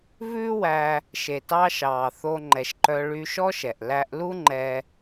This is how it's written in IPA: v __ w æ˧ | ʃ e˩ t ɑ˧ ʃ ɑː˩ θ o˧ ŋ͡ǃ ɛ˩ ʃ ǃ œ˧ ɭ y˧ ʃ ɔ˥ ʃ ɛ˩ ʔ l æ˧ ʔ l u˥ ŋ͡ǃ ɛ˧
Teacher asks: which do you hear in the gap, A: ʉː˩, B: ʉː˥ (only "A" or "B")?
B